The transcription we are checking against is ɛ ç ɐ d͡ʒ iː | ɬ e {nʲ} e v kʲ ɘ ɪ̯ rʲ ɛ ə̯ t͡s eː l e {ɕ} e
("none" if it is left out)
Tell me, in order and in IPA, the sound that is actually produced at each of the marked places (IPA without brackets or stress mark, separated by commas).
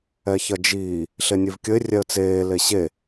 nʲ, ɕ